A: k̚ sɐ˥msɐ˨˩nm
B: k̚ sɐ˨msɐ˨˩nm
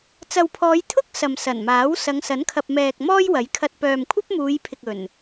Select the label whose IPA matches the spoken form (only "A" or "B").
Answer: B